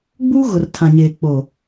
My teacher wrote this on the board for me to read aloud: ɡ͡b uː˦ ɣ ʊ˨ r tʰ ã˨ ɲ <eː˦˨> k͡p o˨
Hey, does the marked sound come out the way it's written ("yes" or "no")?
no